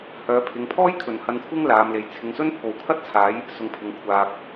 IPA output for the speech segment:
h œː˨˧ pʰ ɪ˨˧ ŋ pʰ ɔː˥ j kʰ ɵ˨ n h ɐ˧ n kʷʰ ɪ˥ ŋ l aː˨˧ m l e˨˧ j t͡sʰ ɪ˨˧ ŋ s ɵ˥ n pʰ o˨ w kʰ ɐ˥ t̚ t͡sʰ aː˨˧ j | s ʊ˧ ŋ pʰ ɪ˧ ŋ kʷʰ aː˨ k̚

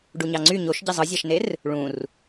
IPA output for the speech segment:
ɖ u ɲ ɑ ŋ͡ǀ y ɲ o ʃ ɟ i zˤ ɯ zʲ æ ʃ n e r | ɭ ũ r

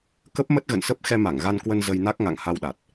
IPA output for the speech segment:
k ə˦˥ p̚ m ə˦˥ t̚ ɣ ə̰˧˨ n s ə˦˥ p̚ x ɛ˧ m a˧˩ ŋ ɣ a˧ n k w ə˧ n z ə˧ j n a˦˥ k̚ ŋ a̰˧˨ ŋ h a˧ w ɗ a˨˩ t̚

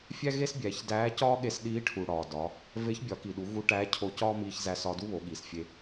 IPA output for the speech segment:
fʲ æ˥ ɣ e˥ s bʲ æ˩˧ ç d æː˧˥ c ɒː˥ ɠ e˧ s ɗ iː˧˥ ʈʰ u˩ ɽ ɒː˩ d ɒ˩˧ | v e˧˥ ç bʲ ɒ˩˧ k i˩ ɗ u˩˧ ɣ u˧ ʈ æː˧˥ cʰ o˧ c ɒː˥ m iː˧ ç z æ˧ s ɒ˧ d u˥ β o˩˧ ɠ iː˩ s fʲ e˧

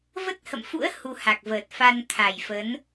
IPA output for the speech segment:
v ə˦˥ t̚ h ə̰˧˨ m f ṵ˧˥ ə̯ h u˧ h a˨˩ k̚ v əː˨˩ t̚ f a˧ n t̪ʰ a˨˩ j f ə˨˦ n

